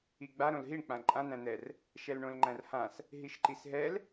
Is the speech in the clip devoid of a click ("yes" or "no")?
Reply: no